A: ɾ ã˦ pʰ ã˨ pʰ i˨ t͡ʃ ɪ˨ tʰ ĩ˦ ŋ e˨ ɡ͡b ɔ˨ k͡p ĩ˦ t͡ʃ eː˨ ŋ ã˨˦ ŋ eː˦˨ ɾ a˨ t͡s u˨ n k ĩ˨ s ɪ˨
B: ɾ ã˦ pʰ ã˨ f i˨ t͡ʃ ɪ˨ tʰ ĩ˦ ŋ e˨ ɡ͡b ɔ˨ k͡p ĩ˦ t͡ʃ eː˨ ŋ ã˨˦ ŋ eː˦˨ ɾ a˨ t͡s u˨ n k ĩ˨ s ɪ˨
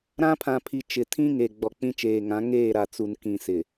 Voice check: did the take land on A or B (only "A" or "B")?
A